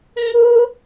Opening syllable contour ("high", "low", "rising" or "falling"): high